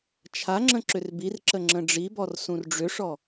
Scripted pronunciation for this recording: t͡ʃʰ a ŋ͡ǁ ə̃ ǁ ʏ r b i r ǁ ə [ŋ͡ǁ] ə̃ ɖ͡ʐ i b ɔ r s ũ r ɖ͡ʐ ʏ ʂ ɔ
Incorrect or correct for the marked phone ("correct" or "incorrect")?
correct